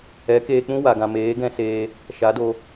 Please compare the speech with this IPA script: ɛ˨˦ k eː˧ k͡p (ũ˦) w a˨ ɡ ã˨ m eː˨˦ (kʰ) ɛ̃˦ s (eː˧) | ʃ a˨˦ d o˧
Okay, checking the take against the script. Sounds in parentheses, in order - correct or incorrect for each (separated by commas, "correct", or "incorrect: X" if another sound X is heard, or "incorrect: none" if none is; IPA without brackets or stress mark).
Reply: correct, incorrect: ɡ, correct